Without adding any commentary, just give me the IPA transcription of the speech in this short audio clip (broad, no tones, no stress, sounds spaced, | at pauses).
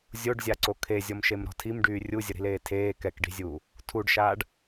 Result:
zʲ o ɖ zʲ a ǀ o kʰ e zʲ ɔ m ʃ e m ɾ ɔ̤ tʰ i m ɖ yː rʲ u zʲ ə ɾ i̤ l eː tʰ eː k ɛ k ɖ i̤ zʲ uː | tʰ u ɖ ʃ aː ɖ